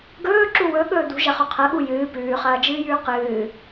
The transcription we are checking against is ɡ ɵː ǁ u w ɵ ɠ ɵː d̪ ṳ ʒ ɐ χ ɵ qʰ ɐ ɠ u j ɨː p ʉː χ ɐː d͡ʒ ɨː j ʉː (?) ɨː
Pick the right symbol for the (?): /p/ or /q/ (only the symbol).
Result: q